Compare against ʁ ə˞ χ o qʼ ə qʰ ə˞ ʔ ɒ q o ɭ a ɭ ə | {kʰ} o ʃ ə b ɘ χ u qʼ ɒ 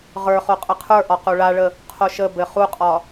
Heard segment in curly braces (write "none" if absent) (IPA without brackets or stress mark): qʰ